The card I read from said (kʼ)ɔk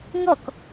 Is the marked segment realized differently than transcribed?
yes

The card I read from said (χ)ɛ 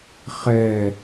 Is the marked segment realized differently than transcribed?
no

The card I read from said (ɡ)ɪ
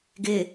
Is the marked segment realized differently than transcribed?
no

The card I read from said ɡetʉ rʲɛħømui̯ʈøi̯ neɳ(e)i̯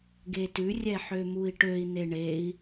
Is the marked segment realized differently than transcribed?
no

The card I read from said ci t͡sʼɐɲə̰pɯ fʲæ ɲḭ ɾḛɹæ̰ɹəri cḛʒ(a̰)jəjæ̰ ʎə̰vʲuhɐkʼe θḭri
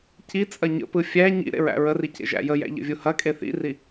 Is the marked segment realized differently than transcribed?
yes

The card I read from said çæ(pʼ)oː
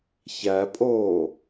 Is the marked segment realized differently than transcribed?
no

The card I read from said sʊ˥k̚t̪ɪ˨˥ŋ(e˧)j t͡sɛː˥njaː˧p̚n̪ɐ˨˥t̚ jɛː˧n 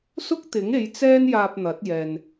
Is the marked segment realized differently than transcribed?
yes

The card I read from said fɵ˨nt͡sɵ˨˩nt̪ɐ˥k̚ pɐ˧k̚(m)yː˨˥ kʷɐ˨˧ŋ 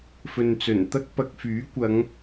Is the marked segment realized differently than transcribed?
yes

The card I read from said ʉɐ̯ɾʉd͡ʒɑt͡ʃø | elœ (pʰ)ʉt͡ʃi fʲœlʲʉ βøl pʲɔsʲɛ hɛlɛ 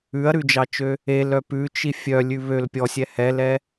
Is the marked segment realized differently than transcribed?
yes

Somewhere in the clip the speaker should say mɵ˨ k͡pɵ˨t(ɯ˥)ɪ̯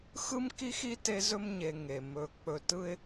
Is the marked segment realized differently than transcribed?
no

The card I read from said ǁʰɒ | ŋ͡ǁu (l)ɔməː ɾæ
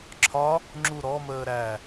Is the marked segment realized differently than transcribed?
yes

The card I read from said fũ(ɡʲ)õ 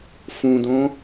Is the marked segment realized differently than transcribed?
yes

